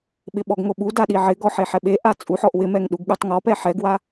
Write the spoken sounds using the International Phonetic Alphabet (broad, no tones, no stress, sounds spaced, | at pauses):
ɓ ɪ ɓ ɔ ɡ ŋ o ɓ u d a ɗ i ʕ ɪ ɡ ɔ ħ e ħ ɛ ɓ e ʔ a t͡sʼ u ħ ɔ ʔ w ɪ m ɛ ŋ ɗ u ɡ ɠ u tˤ ŋ ɔ p ɛ ħ ɛ ɡ w a